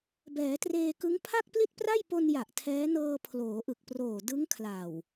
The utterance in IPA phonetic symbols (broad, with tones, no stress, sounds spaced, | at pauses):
b ɛː˩˦ t r eː˧ k ɯ˦˥ ŋ pʰ a˥˩ k̚ p l i˥˩ t̚ p r a˥˩ j p o˧ n j a˨˩ ʔ tʰ ɛː˦˥ n ɤː˧ pʰ l oː˩˦ ʔ ɯ˨˩ k̚ p r oː˨˩ d ɯ˦˥ ŋ kʰ l a˨˩ w